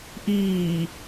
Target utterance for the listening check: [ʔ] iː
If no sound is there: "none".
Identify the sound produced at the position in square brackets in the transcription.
ʔ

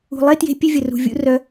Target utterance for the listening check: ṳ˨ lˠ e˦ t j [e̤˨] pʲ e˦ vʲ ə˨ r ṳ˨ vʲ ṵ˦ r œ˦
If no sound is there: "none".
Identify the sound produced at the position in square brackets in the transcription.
e̤˦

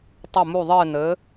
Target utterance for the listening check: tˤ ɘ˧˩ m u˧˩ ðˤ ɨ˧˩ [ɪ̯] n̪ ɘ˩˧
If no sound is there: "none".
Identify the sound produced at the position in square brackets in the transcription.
ɪ̯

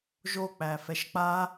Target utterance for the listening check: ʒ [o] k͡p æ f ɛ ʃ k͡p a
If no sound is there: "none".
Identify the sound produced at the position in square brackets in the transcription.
o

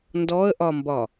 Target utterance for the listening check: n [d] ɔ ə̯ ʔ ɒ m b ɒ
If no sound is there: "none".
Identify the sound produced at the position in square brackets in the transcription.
d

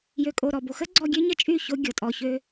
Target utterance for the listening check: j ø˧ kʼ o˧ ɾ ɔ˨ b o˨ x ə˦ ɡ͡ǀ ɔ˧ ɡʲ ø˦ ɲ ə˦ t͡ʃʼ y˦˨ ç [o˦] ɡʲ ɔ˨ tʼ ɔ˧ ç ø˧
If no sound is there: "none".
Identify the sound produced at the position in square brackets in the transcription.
o˦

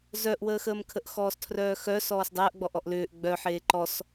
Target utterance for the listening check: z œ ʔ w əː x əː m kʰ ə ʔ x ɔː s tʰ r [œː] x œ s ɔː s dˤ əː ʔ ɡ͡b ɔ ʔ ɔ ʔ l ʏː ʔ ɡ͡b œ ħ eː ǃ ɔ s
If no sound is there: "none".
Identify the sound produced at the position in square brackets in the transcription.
œː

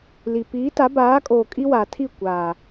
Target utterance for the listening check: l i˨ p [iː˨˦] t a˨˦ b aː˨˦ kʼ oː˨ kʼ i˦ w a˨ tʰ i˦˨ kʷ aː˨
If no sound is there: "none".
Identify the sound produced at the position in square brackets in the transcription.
iː˨˦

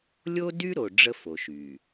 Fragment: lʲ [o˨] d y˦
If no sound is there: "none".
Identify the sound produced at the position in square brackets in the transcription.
o˦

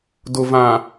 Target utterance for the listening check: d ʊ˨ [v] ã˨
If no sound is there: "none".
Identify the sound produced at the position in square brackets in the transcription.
v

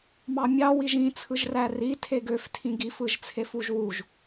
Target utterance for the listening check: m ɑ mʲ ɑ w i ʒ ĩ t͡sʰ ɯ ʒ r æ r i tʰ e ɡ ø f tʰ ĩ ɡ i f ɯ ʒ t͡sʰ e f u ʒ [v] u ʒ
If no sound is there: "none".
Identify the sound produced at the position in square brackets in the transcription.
w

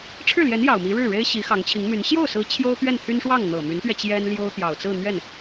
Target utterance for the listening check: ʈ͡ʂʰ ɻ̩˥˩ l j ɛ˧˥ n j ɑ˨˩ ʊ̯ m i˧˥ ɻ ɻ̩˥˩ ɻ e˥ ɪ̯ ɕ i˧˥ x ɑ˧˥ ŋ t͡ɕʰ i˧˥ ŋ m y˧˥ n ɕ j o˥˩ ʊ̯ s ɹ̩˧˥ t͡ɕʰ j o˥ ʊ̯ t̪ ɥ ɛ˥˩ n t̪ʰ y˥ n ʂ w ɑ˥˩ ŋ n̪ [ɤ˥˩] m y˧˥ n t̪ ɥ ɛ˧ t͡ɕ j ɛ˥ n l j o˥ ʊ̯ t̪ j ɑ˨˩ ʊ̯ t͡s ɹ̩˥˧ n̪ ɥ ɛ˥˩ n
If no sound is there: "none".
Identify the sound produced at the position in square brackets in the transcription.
ɤ˨˩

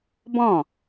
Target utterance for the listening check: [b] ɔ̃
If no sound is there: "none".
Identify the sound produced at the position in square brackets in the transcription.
b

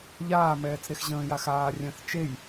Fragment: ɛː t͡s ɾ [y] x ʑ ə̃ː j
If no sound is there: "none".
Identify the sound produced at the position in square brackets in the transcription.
e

